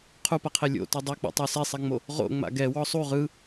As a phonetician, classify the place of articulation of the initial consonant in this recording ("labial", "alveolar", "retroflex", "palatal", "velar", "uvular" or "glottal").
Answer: uvular